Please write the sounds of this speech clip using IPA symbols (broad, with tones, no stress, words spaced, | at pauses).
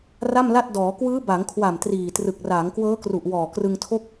ra˥˩mla˥˩t̚ dɔː˩˦ kwɯː˦˥ba˩˦ŋkʰwa˨˩m triː˨˩trɯ˨˩k̚ raː˩˦ŋkwɤː˦˥kru˨˩ʔ wɔː˨˩krɯ˧ŋtʰo˥˩k̚